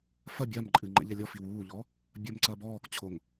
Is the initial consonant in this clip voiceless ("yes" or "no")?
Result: yes